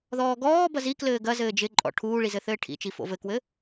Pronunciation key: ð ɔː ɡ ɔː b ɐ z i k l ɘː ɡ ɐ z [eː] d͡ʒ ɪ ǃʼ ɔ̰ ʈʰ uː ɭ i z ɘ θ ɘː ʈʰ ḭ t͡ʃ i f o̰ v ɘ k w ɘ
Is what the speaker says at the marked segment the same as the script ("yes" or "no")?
no